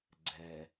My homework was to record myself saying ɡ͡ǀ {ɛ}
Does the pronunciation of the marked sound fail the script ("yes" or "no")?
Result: no